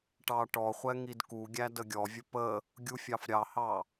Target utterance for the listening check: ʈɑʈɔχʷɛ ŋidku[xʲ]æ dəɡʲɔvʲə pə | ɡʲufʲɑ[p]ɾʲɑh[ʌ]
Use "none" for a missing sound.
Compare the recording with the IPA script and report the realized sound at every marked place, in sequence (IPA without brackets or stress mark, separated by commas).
ɡʲ, f, ɑ